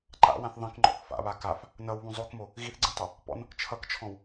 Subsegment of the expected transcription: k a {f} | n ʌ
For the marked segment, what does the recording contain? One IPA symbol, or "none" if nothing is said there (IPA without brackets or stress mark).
f